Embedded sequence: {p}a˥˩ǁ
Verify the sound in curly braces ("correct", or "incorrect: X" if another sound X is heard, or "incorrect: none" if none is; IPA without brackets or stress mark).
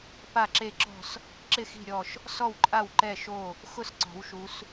correct